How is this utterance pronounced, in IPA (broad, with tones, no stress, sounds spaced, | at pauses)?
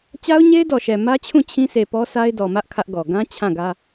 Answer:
t͡ɕ a˦ ʊ̯ ɲ e˦ ɪ̯ d ɔ˨ ʃ ɛ˨ m ä˦ t͡ɕʰ ũ˦˨ t͡ɕʰ ĩ˦ sʰ e˨ p ɔ˦ sʰ a˦ ɪ̯ d ɔ˨ m ä˦ ʔ kʰ ä˦ ʔ ɡ ɔ˨ ɡ ã˦ t͡ɕʰ ã˦˨ ɡ ä˦